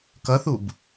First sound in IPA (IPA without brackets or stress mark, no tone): k